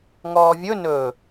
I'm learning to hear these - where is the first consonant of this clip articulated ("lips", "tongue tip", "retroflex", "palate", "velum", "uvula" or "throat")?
velum